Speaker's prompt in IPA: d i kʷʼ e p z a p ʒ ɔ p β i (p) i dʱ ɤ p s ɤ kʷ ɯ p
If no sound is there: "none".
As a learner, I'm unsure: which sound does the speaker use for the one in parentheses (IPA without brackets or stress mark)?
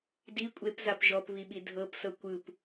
ɓ